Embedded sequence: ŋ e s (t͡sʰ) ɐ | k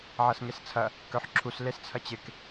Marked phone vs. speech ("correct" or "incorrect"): correct